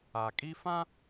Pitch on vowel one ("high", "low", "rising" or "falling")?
low